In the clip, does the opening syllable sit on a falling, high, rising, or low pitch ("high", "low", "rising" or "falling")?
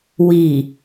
low